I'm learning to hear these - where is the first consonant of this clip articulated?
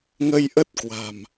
velum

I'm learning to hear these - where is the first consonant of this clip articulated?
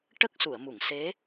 retroflex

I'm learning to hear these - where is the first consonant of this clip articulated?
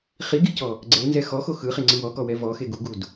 uvula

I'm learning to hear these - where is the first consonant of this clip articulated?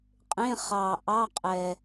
uvula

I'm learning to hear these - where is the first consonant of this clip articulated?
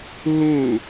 throat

